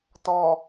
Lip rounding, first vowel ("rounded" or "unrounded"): rounded